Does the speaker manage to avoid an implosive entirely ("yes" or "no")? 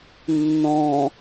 yes